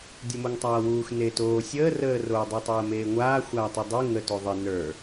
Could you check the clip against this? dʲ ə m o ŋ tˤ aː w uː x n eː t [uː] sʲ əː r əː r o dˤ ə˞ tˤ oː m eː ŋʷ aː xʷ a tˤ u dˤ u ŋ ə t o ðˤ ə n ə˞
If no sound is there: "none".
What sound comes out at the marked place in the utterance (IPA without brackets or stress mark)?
oː